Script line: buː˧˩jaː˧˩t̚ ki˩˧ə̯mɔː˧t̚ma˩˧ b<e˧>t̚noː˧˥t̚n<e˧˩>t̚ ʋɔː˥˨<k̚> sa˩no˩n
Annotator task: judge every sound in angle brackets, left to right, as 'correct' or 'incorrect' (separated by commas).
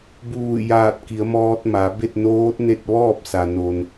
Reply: incorrect, incorrect, incorrect